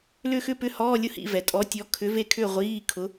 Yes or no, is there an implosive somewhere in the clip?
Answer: no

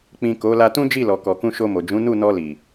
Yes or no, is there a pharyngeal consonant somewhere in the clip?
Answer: no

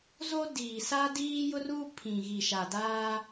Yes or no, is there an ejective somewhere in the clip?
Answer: no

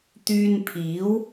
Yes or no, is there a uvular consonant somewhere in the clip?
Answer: no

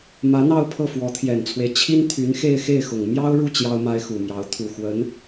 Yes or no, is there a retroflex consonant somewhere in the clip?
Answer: yes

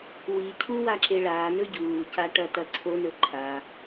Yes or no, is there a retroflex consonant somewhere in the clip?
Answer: yes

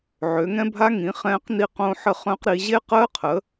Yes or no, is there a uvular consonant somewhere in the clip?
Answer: yes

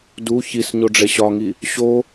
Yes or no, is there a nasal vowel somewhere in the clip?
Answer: no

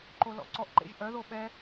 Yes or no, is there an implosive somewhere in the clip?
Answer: yes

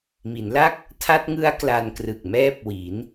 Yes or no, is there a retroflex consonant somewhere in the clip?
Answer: no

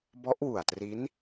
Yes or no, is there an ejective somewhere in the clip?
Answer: no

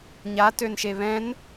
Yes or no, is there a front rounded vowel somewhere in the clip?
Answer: yes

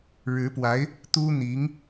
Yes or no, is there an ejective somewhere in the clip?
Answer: no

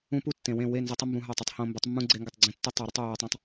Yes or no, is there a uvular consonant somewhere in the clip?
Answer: no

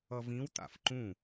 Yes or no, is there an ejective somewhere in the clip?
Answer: no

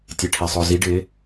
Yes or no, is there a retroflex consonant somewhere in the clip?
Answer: yes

